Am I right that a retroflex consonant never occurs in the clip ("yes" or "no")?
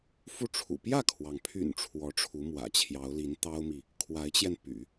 no